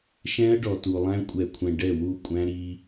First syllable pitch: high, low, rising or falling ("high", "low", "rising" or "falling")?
high